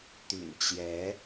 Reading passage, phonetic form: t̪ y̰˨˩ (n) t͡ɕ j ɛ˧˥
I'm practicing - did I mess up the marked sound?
no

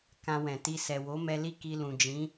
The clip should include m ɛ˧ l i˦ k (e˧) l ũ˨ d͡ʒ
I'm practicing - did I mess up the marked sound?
yes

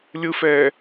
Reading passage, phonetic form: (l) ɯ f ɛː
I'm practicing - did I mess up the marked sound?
yes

